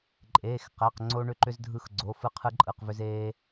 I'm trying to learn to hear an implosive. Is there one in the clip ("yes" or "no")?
no